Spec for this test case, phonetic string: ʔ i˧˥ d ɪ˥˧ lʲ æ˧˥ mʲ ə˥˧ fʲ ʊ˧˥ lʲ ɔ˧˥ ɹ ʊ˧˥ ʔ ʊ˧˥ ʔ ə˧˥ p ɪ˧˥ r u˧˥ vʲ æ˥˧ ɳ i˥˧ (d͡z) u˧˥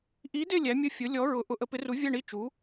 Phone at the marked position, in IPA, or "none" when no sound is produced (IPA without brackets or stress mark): t͡ʃ